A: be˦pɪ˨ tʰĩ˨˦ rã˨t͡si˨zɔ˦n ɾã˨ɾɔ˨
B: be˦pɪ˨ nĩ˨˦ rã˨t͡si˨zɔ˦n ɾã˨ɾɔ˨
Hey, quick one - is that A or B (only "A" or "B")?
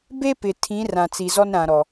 A